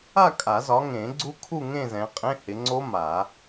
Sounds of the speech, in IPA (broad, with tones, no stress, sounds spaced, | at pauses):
a˥˧ kʼ a˨˩˦ z ɒ˨˦ ŋ ẽ˨˩˦ ɡ͡ǀ u˦˥ kʰ u˥˧ ŋ ẽ˥˧ z ɛ̃˨˦ qʼ ẽ˧˥˧ h ɪ˨˦ ŋ͡ǀ o˦˥ m a˨˩˦